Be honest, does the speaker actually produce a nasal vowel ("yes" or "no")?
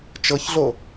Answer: no